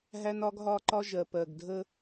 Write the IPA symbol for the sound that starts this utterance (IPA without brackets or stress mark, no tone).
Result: ɦ